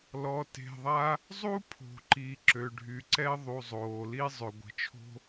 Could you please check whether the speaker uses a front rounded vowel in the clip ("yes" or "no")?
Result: yes